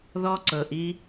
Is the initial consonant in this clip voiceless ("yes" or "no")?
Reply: no